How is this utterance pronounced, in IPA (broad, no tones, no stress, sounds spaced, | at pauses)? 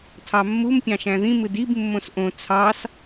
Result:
tʰ ɑ mː u m pʲ ɑ̃ ʃ æ̃ ð ĩ m ɯ d i b mː õ s ʔ õ t͡sʰ ɑ s